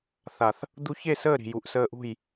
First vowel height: low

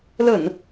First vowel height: mid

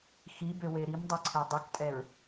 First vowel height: high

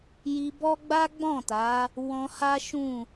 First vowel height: high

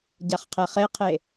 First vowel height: low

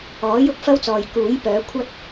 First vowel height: mid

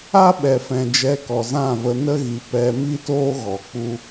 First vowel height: low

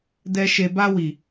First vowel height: mid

